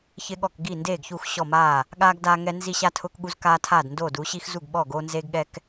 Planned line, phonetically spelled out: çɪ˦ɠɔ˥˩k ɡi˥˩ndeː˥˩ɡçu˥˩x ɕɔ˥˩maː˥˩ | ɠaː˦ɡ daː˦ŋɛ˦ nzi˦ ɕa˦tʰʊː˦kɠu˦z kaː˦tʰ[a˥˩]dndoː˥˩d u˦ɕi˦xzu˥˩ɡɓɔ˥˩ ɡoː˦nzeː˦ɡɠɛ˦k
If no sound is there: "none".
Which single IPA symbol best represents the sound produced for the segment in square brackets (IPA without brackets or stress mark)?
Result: aː˥˩